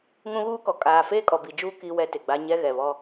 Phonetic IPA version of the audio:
ŋ ũ˦ ɣ uː˦ k ɔ˨ kʼ aː˨ f eː˦ kʼ ɔ˨ b i˨ d͡ʒ uː˦ k i˦ w ɛ˦ t ɪ˨ ɡ͡b a˦ ɲ ɛ˦ ɣ ɛ˨ β ɔ˦

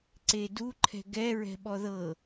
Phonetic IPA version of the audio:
ǀ e d u ǃʰ ɛ̤ ɡ ɛ ɹ ɛ̤ ɓ ɔ ð ɤ

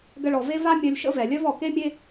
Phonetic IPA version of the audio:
ɡ ə˧ ɭ ɔ˩ v e˥ v a˥ mʲ œ˧ lʲ ʃ ə̰˥ v ɛ˩ lʲ œ˥ v ɔ˩ k e˥ mʲ e˥

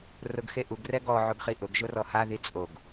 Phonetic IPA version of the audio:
r ʊ ɡ x e ʔ u ɡ r ɛ ɡ ɔ ʕ o ɡ χ i ʔ ʊ ɡ ʒ ʊ r ɔ h a ð i t͡sʼ o ɡ

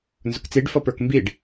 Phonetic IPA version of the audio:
n z ʊ k t͡s i ɖ f ʌ p ə˞ k m b i ɖ

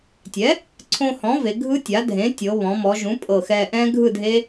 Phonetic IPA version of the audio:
tʲ ɛ˩˥ | ǀʰ õ˧ h ɔ̃˩˥ v e˩˧ ɡʱ ɯ˦˥ tʲ a˩˥ dʱ ẽ˩˥ tʲ ɤ˩˧ β ɔ̃˩˧ m ɔ˩˧ ʒ ũ˩˥ pʼ ɤ˧˩ x ɛ˧ ʔ ɛ̃˦˥ ɡʱ ɯ˥˨ dʱ e˦˥

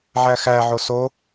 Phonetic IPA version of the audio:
ʕ æ x æ ʕ o s o

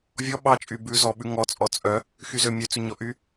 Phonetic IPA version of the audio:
vʲ ɔ ɓ ɑ t͡ʃʼ y b ʉ z ɔ ɓ ʉ ŋ ɔ t͡sʼ ɔ t͡sʼ œ | x y z ø mʲ ø t͡s ʉ ɲ ɔ ʔ y

